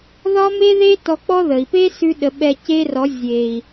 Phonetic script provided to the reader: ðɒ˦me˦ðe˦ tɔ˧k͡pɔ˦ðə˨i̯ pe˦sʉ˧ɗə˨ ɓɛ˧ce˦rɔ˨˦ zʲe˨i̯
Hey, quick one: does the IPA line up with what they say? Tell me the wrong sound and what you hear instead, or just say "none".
none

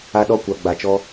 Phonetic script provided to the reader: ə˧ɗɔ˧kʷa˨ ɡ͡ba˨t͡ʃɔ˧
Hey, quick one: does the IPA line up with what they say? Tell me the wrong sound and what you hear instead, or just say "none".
ə˧ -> a˧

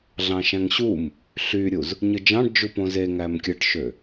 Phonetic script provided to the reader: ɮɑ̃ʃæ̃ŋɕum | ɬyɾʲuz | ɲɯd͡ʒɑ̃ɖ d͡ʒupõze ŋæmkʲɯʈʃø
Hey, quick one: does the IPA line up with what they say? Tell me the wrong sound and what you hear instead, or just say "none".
none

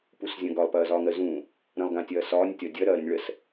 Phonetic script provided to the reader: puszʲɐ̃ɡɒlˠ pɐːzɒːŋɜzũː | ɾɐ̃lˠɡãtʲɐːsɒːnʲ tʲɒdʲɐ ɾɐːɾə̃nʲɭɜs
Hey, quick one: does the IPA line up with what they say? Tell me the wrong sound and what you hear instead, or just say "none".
none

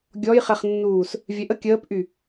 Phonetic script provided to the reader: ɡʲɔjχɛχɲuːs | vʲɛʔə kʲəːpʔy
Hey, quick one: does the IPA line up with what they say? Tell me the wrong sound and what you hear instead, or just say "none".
ɲ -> nː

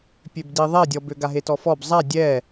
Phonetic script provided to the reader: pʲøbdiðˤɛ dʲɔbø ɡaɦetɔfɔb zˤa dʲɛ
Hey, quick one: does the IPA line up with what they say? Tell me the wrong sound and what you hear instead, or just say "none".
none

